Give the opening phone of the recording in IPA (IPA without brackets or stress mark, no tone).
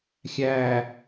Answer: xʲ